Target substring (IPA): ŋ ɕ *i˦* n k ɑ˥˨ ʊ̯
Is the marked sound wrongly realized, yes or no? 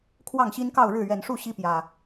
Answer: no